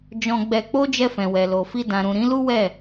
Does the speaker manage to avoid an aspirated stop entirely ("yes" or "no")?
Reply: yes